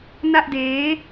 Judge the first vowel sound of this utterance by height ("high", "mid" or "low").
low